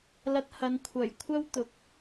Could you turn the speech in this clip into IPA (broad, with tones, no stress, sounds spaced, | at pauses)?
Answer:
l ɐ˧ t̚ h ɐ˨˧ n kʷʰ ɐ˨˩ j kʷʰ ɐ˥ w t̪ ʊ˨˥ k̚